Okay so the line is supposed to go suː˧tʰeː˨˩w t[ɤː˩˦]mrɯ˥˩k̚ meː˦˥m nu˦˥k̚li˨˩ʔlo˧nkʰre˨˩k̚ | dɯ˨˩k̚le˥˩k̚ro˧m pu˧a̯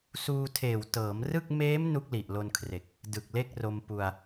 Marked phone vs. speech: correct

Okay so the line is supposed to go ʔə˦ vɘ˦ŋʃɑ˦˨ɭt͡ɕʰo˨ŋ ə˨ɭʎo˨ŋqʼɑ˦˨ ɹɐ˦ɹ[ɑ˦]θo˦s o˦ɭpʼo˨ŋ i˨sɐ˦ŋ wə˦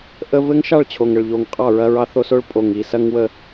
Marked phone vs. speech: correct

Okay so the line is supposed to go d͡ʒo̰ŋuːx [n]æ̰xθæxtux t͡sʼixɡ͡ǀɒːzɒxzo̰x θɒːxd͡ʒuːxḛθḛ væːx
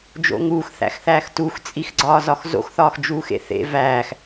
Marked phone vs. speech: incorrect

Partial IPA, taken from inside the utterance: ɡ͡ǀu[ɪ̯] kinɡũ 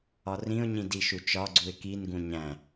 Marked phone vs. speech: correct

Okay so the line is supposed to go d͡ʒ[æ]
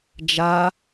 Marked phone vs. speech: incorrect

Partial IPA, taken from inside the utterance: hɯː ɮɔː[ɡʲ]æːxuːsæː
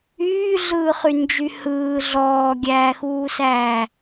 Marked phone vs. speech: correct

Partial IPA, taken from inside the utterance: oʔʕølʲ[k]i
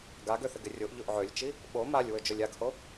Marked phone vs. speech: incorrect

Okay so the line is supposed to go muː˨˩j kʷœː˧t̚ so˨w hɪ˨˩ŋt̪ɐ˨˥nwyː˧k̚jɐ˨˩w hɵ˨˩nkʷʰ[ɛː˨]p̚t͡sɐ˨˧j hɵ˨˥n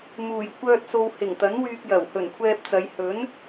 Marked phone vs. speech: incorrect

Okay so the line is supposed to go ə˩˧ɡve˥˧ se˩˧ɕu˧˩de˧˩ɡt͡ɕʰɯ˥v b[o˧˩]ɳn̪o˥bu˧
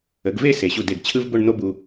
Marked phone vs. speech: incorrect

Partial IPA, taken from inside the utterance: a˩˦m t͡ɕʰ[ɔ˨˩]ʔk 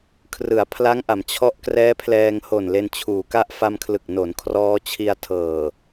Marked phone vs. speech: incorrect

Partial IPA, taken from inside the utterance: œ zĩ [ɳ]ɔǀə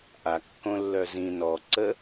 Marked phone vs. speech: incorrect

